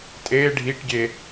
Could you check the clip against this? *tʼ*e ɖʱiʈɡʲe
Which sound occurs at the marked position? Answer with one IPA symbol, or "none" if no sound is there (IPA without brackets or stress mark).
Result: tʼ